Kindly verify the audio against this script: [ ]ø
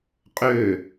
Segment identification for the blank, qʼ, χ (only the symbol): qʼ